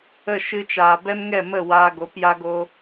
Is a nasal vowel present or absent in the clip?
absent